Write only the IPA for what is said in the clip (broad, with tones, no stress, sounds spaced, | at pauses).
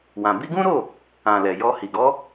w ã˨ b i˧ ɡ ũ˦ ɾ o˦˨ | ã˨ l ɛ˨ j ɔ˧ h i˨ ɡ ɔ˨˦